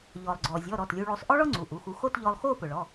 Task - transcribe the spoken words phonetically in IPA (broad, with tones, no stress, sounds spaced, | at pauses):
ʎ ɔ˩ lˠ ɡ͡ǀ ɔ˩ zʲ ɔ˩˧˩ ɾ ɔ˩˧˩ t lʲ u˧ ɭ o˧ sˤ ʔ ɔ˥ ɭ ɔ˥ ŋ͡ǀ u˩˧˩ ʔ u˩˧˩ x u˧ x o˥˧ t ʎ ɔ˧ lˠ x o˥˧ p ʊ˩ ɭ ɔ˩˧˩